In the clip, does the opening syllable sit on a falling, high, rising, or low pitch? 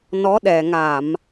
rising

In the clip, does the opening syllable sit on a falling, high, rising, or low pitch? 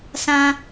high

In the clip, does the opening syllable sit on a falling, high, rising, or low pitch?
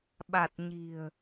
low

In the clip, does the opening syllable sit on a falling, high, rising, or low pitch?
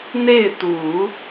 falling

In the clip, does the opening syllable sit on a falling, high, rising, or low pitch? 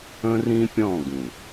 high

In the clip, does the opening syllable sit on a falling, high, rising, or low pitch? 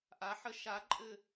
rising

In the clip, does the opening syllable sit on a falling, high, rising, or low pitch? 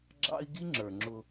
high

